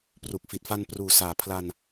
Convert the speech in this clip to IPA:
p r u˨˩ k̚ f i˨˩ t̚ f a˧ n p r uː˨˩ s aː˩˦ pʰ l a˧ n

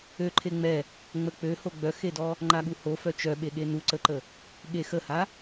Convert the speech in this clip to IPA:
ø ǃʰ e ŋ͡m ɛ | ŋ͡m ə k͡p ø h o ɡ͡b œ x e d ɔ | ŋ͡ǃ a ɠ u h o f œ t͡ʃ œ ɓ e ɠ e n u ǀ ə ǃ ə | ɠ e x ə h a

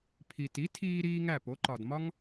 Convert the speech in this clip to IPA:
pʰ i˩ t i˩˥ tʰ iː˧ ɾ iː˥ ŋ æ˥˩ p o˩˥ ǃ ɒ˩ d m ɒ˥ ŋ

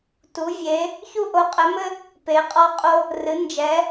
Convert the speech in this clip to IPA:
t u˨˦ vʲ e˨˦ | ç u˦ ʔ o˨˦ qʼ ɛ˨˦ m ɘ˦ | p e˨˦ qʼ ɔ˦ qʼ o˦ | r ɨ˨˦ n d͡ʒ ɛ˨˦

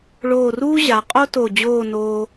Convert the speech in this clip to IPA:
ɭ oː˧˩ r uː˥ ʑ a˩˧ qʼ o˥ t o˧˩ d͡ʑ oː˥˧ n oː˧

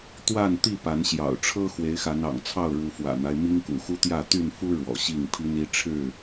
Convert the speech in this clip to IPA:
t̪ w a˥˨ n t̪ i˥˨ p a˨˦ n ɕ j ɑ̰˨˩ ʊ̯ ʈ͡ʂʰ ɤ˦ x w e˨˦ ɪ̯ x a˨˦ n ɑ̰˨˩ ŋ t͡sʰ ɑ˥˨ ʊ̯ ɻ u˨˦ f w ä̰˨˩ n̪ a˦ ɪ̯ m i˦ ŋ k ṵ˨˩ x u˦ t̪ j ä˥˨ t̪ y˥˨ n f u˦ ɻ w ɔ̰˨˩ ɕ i˥˨ ŋ pʰ i˦ n i˦ ʈ͡ʂʰ ɻ̩˥˨

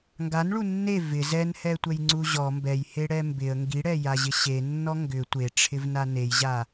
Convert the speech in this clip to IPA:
ŋ ɡ a n ɭ u nː e v ɪ z ɛ n h ɛ tʷ ɛ j ŋ͡ǀ u ʑ ɔ m b ɛ j h e ɽ ɛ m b ɪ ə̯ ŋ ɡ i ɽ ɛ j a ʑ ɪ ɕ e nː ɔ ŋ ɡ ʏ tʷ e ʈ͡ʂʰ ɪ v n a n e j ʑ a

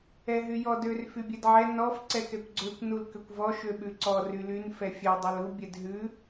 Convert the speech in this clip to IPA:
ɛ ɦ y j ɔ d ø r f y bʲ ɛ d ʕ ɛ n ɔ f ǀ ɛ k ɛ kʷ ɡ͡ǀ ø kʷ n u l k ø kʷ v ɔ ʃ ø ɓ ʉ ǀ ɔ r y l y n f ɛ fʲ ɛ dˤ ø l u bʲ ɛ d ɦ ʉ

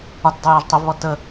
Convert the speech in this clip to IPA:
ɒ t dˤ ɵ j ɒ ʒ tˤ ɵ v β ɔ t ə

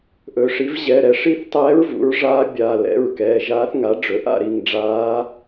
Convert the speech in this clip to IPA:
ʔ ɵ˩˧˩ ʂ i˩˥ v ʑ ɛ˩˧˩ ɾ ɛ˩˥ ʂ i˦˨ θ tˤ ɛː˧˥ ɹ v ṵ˩˥ ɹ ʐ aː˧˥ bʲ a˩˧˩ l ɛ̰˩˧˩ ɹ k ɛː˩˧˩ ʒ aː˧˥ θ ŋ a˩˥ ɖ͡ʐ ɵ˩˥ ʔ a̰˦˨ ɾ i˦˨ ŋ ɖ͡ʐ aː˧˥

